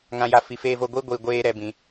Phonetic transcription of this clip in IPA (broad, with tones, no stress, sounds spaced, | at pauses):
ŋ ã˨ j a˨ f i˨ f eː˦ v o˦ ɡʷ i˦ ɡʷ i˨ ɡʷ eː˦ ɾ ɛ˨ b ĩ˨